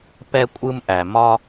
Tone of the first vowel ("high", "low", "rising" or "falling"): high